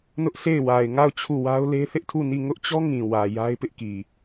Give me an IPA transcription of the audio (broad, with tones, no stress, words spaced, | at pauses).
nʊ˦ʔsʰe˦˨ɪ̯ wa˨ɪ̯ŋa˦˨ʊ̯ t͡ɕʰu˦˨wa˦ʊ̯le˦ θɪ˦ʔtʰu˦˨ni˦˨ ŋʊ˦ʔt͡ɕɔ˦ ŋĩ˨wä˨ ja˦ɪ̯pɪ˦ʔki˨